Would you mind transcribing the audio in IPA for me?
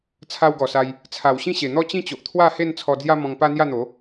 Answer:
t͡sʰa˧wɡɔ˨˩sa˧j | t͡sʰa˨˩wɕĩ˥˧ɕe˨˩ n̪ɔ˥˧ t͡ɕĩ˥˧t͡ɕo˨ʔt̪ʰwa˥˧ he˥˧n t͡sʰɔ˧d͡zja˦mɔ̃˧ŋpa˦ n̪ja˥˧n̪o˨˦

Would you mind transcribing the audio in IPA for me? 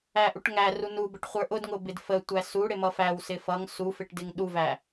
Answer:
æʔuʈŋæru nu bəʈχʷə˞ʔʊdŋʊ bɪdfətʷæ suɽɪ mʌfæwsɪ fʌŋ sufɪʈ dɪŋɗuvæ

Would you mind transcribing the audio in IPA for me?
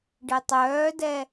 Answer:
ɖetˤœːdɛ

